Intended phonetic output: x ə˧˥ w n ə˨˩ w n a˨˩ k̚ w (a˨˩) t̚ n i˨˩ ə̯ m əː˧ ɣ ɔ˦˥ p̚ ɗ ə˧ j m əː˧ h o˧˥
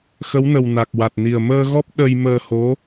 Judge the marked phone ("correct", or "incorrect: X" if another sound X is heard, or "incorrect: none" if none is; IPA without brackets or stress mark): correct